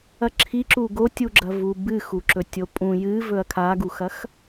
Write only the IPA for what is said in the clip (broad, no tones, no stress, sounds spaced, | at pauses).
ɐ ǁʰ i ǁ u ɡ o tʲ u ɡ͡ǁ ɐ v u b ɨ x u ǁ ɵ tʲ o pʼ ũ j ɨ v ɵ ɐ̯ kʰ a ɡ u x ɐ x